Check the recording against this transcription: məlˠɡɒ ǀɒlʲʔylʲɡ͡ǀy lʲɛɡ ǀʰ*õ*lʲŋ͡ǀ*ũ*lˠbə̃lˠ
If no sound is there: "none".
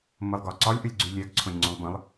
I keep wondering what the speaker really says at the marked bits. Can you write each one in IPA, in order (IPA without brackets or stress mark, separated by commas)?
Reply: õ, õ